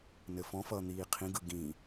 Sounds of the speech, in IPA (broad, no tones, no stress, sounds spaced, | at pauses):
n ɘ f ɔ̃ f ʌː n̪ iː qʰ ĩ ɡ ɯ ɡ ĩ